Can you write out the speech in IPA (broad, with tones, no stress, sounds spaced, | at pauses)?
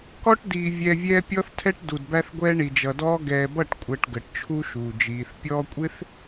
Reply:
k ɔ˦ ʈ d iː˨ vʲ ɛ˨ vʲ ɛː˦ pʲ ɔ˦ θ tʰ ɛ˦ ʈ d u˨ d b æ˦ θ ɡʷ ɛː˦ ɳ i˨ d͡ʒ ʌ˨ d ɔː˦ ɡ ɛː˨ b ʌ˦˨ ʈ kʷʼ ɜ˨ ʈ ɡ ə˨ ʈ t͡ʃʰ u˦ ʃ uː˨ d͡ʒ iː˨ θ pʲ ɔː˦ kʷʼ ɪ˦ θ